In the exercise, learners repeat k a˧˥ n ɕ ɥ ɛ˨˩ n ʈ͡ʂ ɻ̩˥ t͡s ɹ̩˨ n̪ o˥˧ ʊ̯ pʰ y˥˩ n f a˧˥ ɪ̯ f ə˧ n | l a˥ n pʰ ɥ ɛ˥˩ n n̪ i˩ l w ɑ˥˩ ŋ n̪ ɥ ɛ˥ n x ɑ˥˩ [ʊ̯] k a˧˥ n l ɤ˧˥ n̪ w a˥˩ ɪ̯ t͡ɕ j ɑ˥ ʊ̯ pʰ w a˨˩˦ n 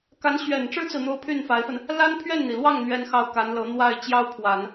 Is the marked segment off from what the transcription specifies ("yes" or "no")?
no